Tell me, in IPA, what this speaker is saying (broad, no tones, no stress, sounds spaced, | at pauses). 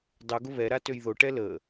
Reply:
dˤ u ɡ ʊ β ɛ ɾ a t ø j ð o ʈ ɛ l ə